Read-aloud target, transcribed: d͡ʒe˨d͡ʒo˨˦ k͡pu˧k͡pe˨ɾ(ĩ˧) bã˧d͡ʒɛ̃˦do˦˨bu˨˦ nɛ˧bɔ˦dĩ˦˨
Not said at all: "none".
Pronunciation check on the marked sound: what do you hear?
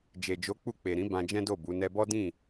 ĩ˨˦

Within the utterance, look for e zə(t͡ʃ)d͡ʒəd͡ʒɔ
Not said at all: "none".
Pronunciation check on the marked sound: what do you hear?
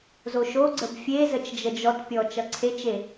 t͡ʃ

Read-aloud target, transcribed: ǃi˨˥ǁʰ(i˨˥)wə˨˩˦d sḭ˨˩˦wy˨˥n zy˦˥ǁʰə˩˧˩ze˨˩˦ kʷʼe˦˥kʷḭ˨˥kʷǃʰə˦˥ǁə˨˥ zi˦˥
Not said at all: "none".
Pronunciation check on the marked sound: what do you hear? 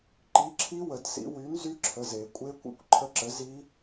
i˦˥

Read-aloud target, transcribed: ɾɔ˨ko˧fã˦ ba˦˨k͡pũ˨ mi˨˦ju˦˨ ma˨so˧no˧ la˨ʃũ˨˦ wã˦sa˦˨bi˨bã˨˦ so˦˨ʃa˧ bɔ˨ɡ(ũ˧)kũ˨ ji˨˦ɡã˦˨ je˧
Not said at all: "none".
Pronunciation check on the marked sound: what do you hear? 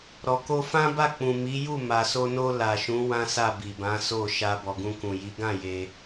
ũ˧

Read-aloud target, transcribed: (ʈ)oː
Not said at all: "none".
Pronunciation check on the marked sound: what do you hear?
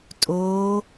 tʼ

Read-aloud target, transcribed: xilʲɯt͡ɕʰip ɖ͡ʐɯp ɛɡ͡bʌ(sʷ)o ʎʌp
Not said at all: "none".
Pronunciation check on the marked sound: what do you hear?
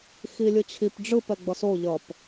s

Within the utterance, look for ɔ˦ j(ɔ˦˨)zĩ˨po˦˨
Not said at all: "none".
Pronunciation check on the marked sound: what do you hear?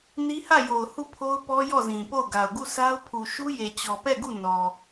ɔ˦˨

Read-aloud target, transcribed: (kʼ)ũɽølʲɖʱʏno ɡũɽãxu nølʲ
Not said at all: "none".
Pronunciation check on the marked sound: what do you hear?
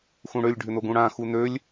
x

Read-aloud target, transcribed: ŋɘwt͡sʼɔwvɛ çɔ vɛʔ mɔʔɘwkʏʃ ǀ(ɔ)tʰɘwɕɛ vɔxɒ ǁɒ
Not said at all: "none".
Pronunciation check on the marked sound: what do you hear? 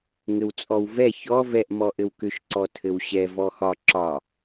ɔ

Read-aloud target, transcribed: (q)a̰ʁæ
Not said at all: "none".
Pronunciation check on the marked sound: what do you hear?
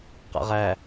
q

